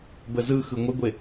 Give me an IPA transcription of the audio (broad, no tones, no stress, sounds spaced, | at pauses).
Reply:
b ə z ɯ x ɯ ŋʷ ə ɡʷ e